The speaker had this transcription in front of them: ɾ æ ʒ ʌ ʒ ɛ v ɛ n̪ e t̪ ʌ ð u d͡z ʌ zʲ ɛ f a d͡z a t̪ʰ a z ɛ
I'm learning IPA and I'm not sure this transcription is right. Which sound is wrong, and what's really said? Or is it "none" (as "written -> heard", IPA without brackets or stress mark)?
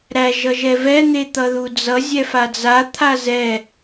none